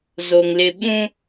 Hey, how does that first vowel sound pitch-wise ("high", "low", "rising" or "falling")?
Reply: low